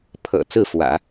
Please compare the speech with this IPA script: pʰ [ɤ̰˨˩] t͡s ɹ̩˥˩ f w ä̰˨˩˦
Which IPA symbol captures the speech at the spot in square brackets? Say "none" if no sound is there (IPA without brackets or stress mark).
ɤ̰˨˩